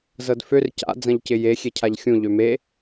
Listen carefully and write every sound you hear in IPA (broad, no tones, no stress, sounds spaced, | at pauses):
z ɤ d f ø r c a̰ d͡z ɐ̃ ʎ c ɪ j e xʲ e cʰ a ʎ xʲ ũ ʎ ø m e